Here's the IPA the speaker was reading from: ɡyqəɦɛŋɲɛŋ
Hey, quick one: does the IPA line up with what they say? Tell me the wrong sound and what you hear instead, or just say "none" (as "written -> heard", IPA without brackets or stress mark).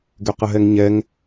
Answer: none